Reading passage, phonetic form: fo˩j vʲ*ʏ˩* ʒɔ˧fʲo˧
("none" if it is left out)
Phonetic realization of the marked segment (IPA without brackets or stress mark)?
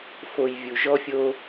u˩